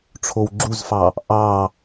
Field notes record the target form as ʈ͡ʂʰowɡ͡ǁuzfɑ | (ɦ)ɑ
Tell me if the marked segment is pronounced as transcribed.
no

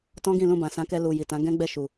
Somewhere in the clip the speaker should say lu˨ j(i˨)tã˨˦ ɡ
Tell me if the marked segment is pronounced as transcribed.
yes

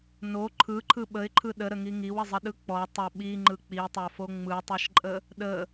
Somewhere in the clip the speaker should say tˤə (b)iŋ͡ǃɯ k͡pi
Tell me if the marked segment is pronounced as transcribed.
no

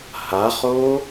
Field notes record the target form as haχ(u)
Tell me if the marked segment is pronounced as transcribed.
no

